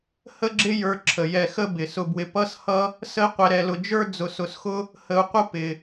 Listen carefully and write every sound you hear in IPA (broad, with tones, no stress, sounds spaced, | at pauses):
h ə˥ ɡ͡ǁ ɪ˥ j ə˞˧ ǁʰ ə˩ j ɛ˧ x ə˥ b ɪ˩ s ʊ˧ b w ɪ˧ p ʌ˥ s h ʌ˥ | s ə˥ i̯ qʷ ɛ˧ ɾ ɛ˧ l ʊ˧ d͡ʒ ə˞˥ d͡z ʊ˧ s ʊ˧ s x ʊ˥ | h ə˧ u̯ qʷ ə˥ p ɪ˩